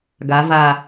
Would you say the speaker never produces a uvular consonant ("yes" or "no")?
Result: yes